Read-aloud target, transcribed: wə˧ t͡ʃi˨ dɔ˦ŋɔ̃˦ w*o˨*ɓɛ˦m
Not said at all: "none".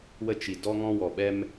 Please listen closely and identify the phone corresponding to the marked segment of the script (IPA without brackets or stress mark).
ɔ˨